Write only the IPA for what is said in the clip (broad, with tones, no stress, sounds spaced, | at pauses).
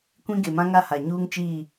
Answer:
kʷ ĩ˦ ɡ e˨ m ã˦ ŋ a˦ h a˨ ɲ uː˦ ŋ t͡ʃ iː˦˨